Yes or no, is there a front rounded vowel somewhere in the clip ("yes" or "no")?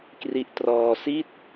no